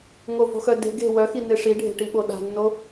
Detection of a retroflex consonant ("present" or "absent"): present